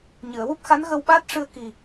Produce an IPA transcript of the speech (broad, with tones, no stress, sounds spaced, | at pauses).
ɲ ɨ˨˩˨ ə̯ w u˦˥ p̚ x a˧˥ n ɣ ə˧ w ɓ aː˦˥ t̚ ʂ ɨ˧ ə̯ k i˨˩